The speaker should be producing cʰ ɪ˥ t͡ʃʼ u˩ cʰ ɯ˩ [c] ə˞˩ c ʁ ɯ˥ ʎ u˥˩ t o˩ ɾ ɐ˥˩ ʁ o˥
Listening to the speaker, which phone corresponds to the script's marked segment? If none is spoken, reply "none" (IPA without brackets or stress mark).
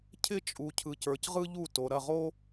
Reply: c